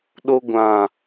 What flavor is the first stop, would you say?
implosive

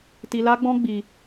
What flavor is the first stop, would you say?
plain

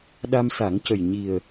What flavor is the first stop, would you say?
implosive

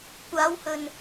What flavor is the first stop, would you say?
plain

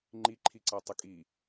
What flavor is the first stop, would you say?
click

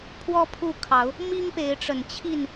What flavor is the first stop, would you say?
aspirated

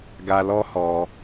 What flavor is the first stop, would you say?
plain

